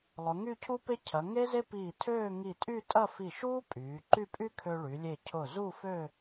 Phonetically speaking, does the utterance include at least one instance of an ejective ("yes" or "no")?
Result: yes